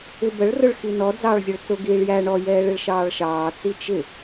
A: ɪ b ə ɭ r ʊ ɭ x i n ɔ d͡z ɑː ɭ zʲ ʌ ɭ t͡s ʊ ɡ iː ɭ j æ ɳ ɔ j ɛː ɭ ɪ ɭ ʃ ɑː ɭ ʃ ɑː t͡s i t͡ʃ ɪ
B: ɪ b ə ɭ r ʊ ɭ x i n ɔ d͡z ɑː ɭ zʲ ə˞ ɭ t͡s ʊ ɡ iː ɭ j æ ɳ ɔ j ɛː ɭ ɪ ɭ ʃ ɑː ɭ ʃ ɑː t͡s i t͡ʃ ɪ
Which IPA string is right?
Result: A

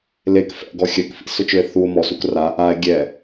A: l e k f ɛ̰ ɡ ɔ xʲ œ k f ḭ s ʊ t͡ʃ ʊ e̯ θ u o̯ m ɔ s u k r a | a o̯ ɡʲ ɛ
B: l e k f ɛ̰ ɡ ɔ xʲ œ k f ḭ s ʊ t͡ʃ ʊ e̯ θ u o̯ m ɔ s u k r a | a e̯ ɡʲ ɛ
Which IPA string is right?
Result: B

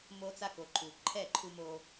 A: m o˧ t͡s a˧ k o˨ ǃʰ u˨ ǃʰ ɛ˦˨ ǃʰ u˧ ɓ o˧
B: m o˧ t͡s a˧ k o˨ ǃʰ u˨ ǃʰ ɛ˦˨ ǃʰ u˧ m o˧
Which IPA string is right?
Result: B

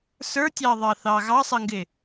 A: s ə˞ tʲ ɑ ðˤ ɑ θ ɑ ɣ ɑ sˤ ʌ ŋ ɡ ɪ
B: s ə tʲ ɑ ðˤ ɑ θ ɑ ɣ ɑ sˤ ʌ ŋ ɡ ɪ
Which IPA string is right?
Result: A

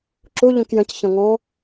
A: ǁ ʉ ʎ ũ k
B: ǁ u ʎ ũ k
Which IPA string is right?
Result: B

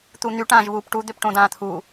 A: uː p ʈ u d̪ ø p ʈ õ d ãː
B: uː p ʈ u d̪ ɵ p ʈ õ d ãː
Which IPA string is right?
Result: A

